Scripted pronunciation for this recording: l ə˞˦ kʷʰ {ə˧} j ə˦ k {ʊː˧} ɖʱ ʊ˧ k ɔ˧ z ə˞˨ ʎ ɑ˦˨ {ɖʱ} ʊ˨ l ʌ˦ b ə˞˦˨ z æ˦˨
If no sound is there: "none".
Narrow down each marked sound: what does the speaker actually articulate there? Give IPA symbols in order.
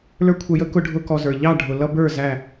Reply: ə˧, ʊ˧, ɖʱ

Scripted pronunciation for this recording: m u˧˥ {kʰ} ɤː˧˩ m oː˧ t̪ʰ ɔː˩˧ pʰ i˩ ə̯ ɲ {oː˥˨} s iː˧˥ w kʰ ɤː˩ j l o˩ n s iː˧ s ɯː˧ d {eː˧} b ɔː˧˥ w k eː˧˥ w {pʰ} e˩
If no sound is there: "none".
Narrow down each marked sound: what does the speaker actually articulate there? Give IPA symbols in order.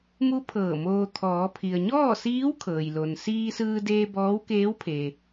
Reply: pʰ, ɔː˥˨, eː˧, pʰ

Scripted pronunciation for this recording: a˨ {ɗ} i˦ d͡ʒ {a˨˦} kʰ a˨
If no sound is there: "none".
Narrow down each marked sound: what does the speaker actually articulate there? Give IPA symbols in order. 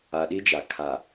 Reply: ɗ, a˨

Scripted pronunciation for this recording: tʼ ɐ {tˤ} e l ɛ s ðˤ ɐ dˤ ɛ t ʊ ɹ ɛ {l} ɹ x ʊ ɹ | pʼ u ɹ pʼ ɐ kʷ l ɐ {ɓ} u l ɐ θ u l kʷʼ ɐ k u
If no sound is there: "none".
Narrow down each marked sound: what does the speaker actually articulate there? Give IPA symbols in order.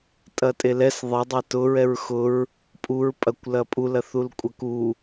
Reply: tʼ, none, pʼ

